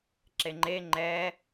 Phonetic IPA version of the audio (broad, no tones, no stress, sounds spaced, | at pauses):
ǁ e ŋ͡ǃ e ŋ͡ǃ ɛ